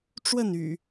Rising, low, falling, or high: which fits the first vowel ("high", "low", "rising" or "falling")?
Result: falling